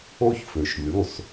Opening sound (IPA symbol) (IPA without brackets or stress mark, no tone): o